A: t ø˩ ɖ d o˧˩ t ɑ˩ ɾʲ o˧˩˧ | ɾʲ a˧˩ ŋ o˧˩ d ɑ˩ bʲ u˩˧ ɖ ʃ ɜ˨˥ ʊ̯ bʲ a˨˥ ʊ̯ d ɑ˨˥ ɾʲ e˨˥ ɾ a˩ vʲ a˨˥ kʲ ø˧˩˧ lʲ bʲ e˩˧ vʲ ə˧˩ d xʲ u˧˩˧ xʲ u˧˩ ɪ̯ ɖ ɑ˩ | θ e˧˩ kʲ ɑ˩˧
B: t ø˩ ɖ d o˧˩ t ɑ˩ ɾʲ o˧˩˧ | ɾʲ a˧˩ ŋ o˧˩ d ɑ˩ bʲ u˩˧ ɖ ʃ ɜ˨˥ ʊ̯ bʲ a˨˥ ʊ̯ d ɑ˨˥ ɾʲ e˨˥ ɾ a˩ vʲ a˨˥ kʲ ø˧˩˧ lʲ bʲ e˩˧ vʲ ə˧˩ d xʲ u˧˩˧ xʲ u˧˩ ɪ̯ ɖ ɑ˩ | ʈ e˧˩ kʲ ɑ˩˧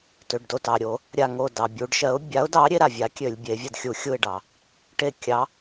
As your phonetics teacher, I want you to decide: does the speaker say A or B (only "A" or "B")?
B